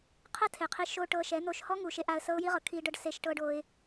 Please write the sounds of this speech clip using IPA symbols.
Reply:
qʰɤ˦tʰe˨qʰi˧ ʃo˧ ʈɤ˧ʃɛ˨˦n̪o˧ʃ hɔ˦ŋu˨ ʃe˦ʔa˧ə̯sɤ˦ʊ̯ ji˦ʁɤ˨ kʰi˧ ɖɤ˧ɖ se˦ʃʈɤ˦ɖo˦ɪ̯

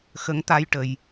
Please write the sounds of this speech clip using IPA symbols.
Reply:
xə˧˥ŋt̪a˧jʈə˨˩˨j

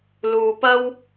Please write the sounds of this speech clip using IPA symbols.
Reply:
luː˧pɐ˥w

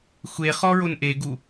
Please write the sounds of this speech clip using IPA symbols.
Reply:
xʷeχɔɹon ʔeɡu

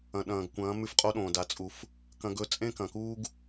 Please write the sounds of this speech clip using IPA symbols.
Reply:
ɐ̃˨ɗɐ̃ː˨ɡkʷɐ̃ː˨˦ mʉ˦fqʼo˦ɗõː˨ da˨t͡sʼu˨f | kɐ̃˦ɡɵ˦ t͡sʼẽ˦kɐ̃˨kuː˦ɡ

